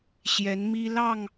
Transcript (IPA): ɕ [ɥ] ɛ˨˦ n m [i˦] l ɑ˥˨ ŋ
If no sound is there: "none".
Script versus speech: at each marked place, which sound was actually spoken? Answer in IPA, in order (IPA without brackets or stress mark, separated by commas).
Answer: j, i˦